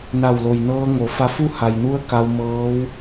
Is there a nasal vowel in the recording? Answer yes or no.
no